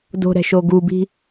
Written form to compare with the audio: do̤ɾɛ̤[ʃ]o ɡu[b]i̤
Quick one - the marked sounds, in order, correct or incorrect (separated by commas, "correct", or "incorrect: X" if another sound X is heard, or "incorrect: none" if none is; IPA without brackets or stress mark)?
correct, correct